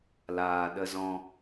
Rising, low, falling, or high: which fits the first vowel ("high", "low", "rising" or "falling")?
low